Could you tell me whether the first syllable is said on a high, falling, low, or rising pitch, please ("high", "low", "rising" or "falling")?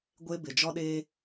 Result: high